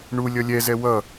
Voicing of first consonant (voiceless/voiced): voiced